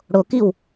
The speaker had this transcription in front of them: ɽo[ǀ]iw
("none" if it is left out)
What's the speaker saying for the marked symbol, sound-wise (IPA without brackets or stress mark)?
k